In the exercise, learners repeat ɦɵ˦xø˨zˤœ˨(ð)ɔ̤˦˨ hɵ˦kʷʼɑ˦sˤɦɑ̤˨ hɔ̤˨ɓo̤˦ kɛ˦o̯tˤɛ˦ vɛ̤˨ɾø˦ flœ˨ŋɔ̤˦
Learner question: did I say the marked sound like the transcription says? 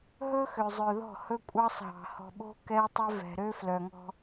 yes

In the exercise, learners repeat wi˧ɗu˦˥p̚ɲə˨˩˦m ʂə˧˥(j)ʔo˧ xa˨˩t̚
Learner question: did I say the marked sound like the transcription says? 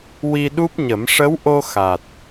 no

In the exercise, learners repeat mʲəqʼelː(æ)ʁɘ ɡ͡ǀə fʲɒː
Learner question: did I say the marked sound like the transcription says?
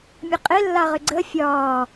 no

